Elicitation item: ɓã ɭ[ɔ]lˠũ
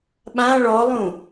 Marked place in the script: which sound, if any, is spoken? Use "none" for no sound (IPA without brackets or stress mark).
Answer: ɔ